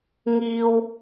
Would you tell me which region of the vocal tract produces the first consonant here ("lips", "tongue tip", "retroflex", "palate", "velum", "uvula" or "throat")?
velum